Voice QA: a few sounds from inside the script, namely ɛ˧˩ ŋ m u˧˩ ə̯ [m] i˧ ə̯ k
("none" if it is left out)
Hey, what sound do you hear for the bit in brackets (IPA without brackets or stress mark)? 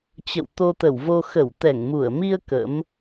m